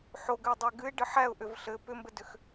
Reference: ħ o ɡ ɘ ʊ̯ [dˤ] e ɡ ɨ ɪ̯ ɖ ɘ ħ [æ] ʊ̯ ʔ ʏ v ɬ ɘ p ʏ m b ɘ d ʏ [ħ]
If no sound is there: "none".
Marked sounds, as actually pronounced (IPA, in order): dˤ, æ, x

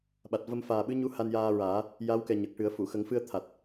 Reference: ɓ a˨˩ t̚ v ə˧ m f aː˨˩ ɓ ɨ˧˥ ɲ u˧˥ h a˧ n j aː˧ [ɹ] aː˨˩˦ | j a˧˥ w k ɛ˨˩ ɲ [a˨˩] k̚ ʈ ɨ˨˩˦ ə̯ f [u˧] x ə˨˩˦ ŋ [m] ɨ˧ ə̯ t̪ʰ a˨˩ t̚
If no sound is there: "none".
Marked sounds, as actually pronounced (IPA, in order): ɹ, ə˨˩, u˨˩˨, f

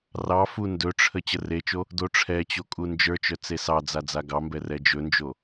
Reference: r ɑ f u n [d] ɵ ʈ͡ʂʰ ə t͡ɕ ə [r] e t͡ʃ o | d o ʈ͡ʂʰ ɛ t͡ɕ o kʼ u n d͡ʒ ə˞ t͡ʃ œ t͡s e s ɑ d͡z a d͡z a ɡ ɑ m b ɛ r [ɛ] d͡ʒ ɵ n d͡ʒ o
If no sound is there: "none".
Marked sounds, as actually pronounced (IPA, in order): d, r, ɛ

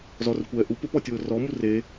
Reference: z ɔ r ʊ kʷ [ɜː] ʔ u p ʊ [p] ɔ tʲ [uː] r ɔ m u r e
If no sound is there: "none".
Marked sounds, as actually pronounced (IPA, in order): ɛː, p, ʊː

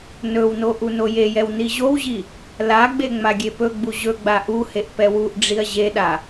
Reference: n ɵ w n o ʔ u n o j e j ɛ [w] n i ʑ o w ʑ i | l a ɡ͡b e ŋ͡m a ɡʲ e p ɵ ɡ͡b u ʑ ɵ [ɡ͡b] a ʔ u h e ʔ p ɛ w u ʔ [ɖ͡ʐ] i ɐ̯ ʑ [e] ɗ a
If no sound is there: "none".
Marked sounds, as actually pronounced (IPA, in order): w, ɡ͡b, ɖ͡ʐ, e

